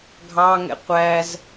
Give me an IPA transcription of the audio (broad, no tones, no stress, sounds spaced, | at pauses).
ɡʱ ɑ ŋ ɛ̰ qʷ æ z